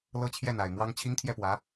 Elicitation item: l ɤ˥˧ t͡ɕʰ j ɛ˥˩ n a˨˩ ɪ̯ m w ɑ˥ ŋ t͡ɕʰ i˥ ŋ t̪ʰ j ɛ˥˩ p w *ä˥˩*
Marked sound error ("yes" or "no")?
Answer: yes